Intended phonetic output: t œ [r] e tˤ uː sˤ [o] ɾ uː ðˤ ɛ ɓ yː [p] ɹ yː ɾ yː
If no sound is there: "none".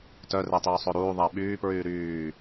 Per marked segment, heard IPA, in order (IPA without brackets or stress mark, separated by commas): r, o, p